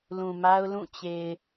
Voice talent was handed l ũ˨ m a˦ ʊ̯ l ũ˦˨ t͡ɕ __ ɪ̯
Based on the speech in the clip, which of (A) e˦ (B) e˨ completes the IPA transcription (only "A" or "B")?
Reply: B